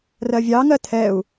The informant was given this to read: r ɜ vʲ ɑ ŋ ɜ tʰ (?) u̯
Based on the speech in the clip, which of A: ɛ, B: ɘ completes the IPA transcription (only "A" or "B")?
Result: A